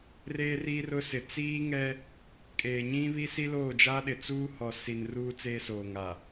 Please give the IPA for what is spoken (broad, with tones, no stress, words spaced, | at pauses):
reː˦ri˦rʊ˦sɪ˨ t͡siː˦ŋɛ˦ | kʼeː˨ɲĩ˦ βi˦si˦loː˦˨ d͡ʒa˦ɗɪ˨t͡suː˦ hɔ˨si˨n ruː˦t͡seː˦soː˨ŋ a˨